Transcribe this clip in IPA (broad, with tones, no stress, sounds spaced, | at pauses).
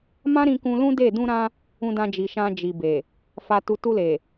m ã˦ ɾ ĩ˧ k ũ˧ l ũ˦ d e˦˨ d ũ˧ ɾ ã˧ | ũ˧ d ã˧ d͡ʒ i˨ ʃ ã˧ d͡ʒ i˨ b e˨ | f a˧ t u˧ t u˧ l e˨